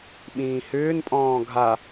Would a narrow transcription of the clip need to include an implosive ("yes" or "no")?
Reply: yes